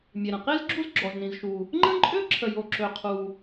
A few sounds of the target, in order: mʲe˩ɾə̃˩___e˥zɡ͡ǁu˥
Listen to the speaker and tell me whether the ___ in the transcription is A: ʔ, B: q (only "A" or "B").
B